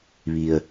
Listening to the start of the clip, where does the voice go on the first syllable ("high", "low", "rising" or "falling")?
low